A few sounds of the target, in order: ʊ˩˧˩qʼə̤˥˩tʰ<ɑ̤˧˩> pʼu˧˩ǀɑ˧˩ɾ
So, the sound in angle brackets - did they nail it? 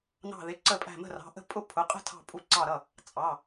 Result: yes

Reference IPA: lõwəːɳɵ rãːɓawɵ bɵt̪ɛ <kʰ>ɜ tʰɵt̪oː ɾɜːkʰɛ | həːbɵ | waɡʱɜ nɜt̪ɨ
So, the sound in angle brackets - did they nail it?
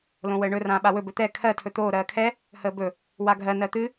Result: yes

